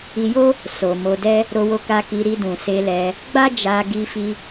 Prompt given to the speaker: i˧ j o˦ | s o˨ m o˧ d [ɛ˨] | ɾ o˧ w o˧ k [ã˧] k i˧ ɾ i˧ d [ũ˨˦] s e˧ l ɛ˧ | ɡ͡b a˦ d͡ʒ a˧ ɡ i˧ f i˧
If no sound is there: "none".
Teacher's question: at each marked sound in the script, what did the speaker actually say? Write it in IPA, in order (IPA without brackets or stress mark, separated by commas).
ɛ˦, a˧, ũ˨